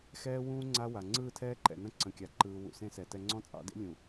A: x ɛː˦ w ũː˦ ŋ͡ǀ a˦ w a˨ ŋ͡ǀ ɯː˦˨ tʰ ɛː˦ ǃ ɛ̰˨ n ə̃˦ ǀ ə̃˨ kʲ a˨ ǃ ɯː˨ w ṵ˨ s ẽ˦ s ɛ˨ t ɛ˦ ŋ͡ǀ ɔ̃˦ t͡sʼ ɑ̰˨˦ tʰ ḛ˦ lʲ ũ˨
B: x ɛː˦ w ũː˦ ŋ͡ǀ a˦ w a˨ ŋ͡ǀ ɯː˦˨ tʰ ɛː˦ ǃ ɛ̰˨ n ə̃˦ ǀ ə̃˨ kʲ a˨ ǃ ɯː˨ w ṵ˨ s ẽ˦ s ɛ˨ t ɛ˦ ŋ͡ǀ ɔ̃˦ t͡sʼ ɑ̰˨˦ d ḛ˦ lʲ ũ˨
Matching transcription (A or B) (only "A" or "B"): B